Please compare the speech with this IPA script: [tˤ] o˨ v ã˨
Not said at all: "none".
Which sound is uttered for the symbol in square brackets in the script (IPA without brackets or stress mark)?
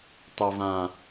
tˤ